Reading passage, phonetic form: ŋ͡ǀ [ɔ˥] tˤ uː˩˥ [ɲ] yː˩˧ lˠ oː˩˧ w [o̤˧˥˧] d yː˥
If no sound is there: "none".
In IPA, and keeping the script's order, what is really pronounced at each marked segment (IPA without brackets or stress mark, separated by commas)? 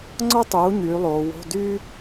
ɔ˥, ɲ, o̤˧˥˧